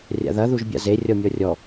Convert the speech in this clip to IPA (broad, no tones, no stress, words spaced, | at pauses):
rʲa̰ðɐ ðuʒbʲa̰ze rʲɔmʲɔrʲɔ